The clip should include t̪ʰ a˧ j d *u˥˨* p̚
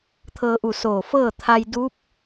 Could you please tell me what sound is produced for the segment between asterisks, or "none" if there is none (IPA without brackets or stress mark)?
u˧˥